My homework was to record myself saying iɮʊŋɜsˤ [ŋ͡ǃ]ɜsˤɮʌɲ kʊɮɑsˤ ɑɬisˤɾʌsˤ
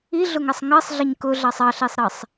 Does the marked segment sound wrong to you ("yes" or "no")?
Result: yes